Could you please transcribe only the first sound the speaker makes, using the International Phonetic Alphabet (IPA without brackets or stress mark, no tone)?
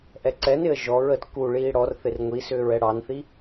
ʔ